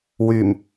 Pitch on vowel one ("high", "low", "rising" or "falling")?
low